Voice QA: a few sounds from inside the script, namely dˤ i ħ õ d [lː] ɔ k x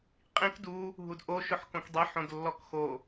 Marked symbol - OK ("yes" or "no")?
yes